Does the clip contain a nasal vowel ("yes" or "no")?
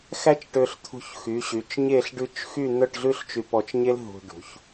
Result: no